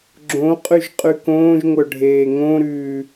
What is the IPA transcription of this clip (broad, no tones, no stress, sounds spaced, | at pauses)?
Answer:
ɡ͡ǁ õ qʼ ʉ ʒ qʼ ʉ k õː ʒ ŋʷ œ ɖʱ eː ŋ õ ɾ ʉː